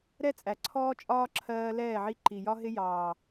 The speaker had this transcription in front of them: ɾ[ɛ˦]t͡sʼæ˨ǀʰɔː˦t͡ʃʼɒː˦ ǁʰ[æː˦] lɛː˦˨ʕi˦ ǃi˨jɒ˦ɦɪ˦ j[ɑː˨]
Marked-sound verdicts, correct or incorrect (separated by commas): correct, incorrect, correct